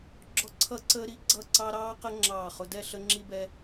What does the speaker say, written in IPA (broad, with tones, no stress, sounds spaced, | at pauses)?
ɡ͡ǁ ɔ˦ ǀʰ ʌ˦ ǀ əː˦ ɾ i˦ ɡ͡ǀ ʌ˥˨ ǀ ɑ˦ ɾ ɑː˦ q ə˦ ŋ͡ǁ ɑː˥˨ χ ʊ˦ d ɛ˥˨ ɬ ə˦ ŋ͡ǁ i˦ b ɛ˦